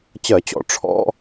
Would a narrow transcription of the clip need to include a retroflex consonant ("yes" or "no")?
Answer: yes